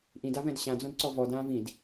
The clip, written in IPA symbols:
ʔ ĩ d a v ɛ̃ d ɕ ã d͡z õ d ǀ ɔ v ɔ d ãː v ĩ d

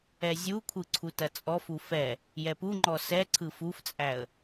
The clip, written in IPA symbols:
ɛ zʲ u kʷʰ ɯ ǀʰ u t ɐ t͡sʼ ɔ f u f ɛ | j ɛ p u ŋ͡ǃ ɔ s ɛ ǀʰ ɯ f u f t͡sʼ æ ə̯

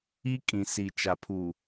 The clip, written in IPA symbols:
i˦ kʼ ĩ˨ s i˨ t͡ʃ a˨ pʰ u˨

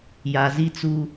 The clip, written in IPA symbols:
j a˨ z i˦ t͡s u˦

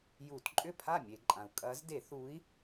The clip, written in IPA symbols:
j u˧˩˧ t ǃʼ ʏ˥˩ pʰ a˥˩ mʲ e˧˩˧ ǃʼ ã˩ u̯ kʼ ɐː˨˦ z d e˧˩˧ θ uː˨˦ i̯

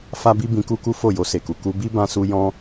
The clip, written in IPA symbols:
f a˦ b i˦ b ĩ˧ k u˦ k u˦ f o˦˨ j o˧ s e˨ k u˨ k u˧ b i˦ b ã˦ s u˦ j ɔ̃˦

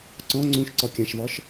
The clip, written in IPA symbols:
ǀ ɔ̃ ŋ͡ǀ ũ ʃ ǀ ɒ kʲ ã ʃ v ɒ ʃ

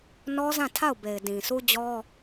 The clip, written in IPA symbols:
n ɔ˦ z ã˦˨ tʰ a˦˨ ʊ̯ b e˨ ɪ̯ d ĩ˨ s u˦ d͡ʑ ɔ˦

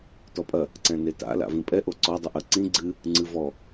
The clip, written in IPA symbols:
t ɔ pʼ ɐ | ǀ ɛ̃ n e t a̰ l a̰ v ĩ pʼ ɛ ʔ o ǀ ɔ dˤ u ʔ ɐ ǀ ĩ ɡ͡ǀ ɨ | ŋ͡ǀ ɨ v ɔ

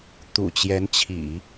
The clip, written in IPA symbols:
t̪ ṵ˨˩ t͡ɕ j ɛ˧˥ n t͡ɕʰ ḭ˨˩˦

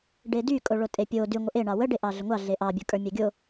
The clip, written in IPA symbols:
ɖ e d y kʼ o ɭ o tʼ e pʲ o d y ŋʷ ə ʔ e ɳ ɑ w ə ɖ e ʔ ɑ ɮ ə ŋʷ ɑ ɮ e ʔ ɑ bʲ ə˞ kʼ ə˞ mʲ ɑ ɡʲ o

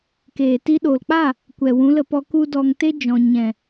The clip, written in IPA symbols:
k eː˨ t i˧ ɗ oː˨ l k͡p a˦˨ | kʷ ɛ˨ w ũ˨˦ l ə˧ p ɔ˧ k u˦ d ɔ˧ ŋ t e˦ d͡ʒ ɔ̃˨ ɲ ɛ̃˨

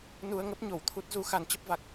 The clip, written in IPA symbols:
n u˧ ə̯ ŋ ə˦˥ p̚ ɲ o˧˩ w t̪ʰ u˦˥ t̚ z u˨˦ x a˨˦ n t͡ɕ ə˦˥ p̚ v a˨˩ k̚

